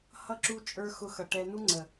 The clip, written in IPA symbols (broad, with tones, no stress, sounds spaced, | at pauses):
h ʌ˦ ǁ u˦ t͡ʃʼ ə˞˦ x ʊ˧ x ʌ˨ ʈ ɛ˧ n u˦ ŋ͡ǀ ə˨